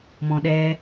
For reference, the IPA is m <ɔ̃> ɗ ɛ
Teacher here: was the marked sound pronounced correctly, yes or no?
yes